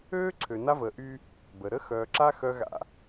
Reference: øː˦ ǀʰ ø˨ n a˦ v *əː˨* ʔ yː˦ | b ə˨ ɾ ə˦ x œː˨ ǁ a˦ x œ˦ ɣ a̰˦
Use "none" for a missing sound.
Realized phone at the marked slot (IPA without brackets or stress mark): əː˨